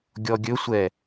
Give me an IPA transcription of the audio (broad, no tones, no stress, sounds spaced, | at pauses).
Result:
ɡʲ ɔ ɡʲ ɵ sʷ ɛ